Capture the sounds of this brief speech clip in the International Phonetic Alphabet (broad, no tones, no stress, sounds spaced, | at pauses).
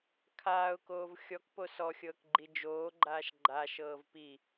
kʰ aː ʊ̯ k oː v xʲ ɔ k p o s ɔ xʲ ɤː k ɡ͡ǃ i d͡ʒ oː ɡ͡ǃ aː ʃ ɡ͡ǃ a ʃ ɤː v p i